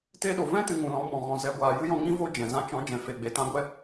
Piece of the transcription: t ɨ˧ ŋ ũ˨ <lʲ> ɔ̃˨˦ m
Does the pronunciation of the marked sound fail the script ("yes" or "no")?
yes